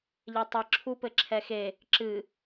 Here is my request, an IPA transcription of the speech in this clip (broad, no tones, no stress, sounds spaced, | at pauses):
ʎ e tˤ ɨ ǁʰ u p ɘ ǁʰ ɛ x e | ǁ ɨ